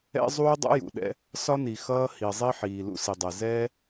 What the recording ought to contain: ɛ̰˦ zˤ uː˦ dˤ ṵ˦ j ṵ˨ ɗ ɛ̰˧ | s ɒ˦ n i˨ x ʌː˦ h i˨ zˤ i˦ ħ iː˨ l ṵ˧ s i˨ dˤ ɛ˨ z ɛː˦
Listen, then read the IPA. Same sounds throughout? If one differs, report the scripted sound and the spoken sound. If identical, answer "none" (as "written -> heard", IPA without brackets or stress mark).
none